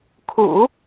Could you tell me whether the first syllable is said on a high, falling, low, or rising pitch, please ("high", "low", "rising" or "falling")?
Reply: low